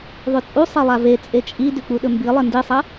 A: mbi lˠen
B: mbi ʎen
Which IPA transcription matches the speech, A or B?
A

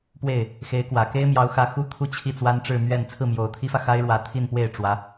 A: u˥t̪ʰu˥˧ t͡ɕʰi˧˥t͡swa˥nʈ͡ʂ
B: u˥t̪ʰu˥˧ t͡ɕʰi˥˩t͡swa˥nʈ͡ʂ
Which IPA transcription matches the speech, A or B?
B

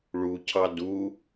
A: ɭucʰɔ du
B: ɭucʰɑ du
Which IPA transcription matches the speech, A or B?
B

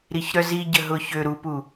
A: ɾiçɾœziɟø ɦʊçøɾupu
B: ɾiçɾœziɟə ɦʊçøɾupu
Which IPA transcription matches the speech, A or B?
B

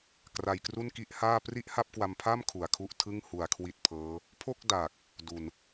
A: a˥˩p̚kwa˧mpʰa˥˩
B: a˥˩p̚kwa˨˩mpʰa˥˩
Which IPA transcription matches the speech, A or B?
A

